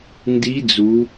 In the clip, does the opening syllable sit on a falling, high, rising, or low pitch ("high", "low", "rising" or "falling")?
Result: rising